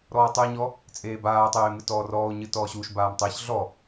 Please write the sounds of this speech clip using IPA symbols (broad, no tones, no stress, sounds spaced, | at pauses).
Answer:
ɾ ɔː tˤ ɨ e̯ ɲ ɔ | t͡sʼ eː b aː tˤ eː m ɨ t ɔː r ɔː o̯ ɲ ɨ t ɔː ɕ u ʃ b aː m tˤ ɛ ç ɮ ɔ